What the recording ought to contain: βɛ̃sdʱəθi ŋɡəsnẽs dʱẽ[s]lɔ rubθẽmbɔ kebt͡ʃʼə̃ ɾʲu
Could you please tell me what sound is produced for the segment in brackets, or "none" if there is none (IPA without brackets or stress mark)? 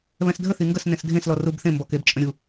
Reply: s